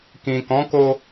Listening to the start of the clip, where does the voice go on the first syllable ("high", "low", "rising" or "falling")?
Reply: low